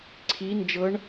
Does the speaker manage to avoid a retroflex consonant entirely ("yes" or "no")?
no